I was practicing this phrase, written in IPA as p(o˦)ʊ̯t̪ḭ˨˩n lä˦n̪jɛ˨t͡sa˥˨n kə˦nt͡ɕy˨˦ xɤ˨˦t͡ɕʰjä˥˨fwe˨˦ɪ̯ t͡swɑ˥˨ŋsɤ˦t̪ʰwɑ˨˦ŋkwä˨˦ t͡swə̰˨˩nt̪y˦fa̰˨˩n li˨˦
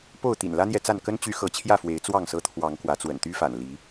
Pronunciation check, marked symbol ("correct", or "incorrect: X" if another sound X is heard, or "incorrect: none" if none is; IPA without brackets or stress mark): incorrect: o˥˨